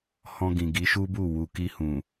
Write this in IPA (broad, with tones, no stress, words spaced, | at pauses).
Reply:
hɔ̃˧ɡĩ˨ ɡi˨˦ʃu˦bu˦˨ wu˨ki˧hũ˨